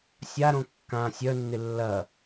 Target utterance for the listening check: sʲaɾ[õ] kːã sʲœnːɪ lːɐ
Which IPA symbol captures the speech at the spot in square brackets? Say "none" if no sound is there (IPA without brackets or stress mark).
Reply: õ